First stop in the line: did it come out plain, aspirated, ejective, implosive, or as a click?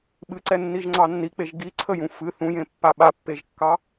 implosive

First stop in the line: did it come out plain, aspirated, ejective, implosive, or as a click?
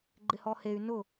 click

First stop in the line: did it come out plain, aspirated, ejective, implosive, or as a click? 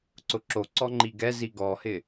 click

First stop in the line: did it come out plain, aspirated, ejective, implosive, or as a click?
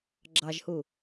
click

